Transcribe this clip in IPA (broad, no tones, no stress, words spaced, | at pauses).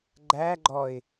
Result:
ɡ͡ǃæ ɡ͡ǃɔɪ̯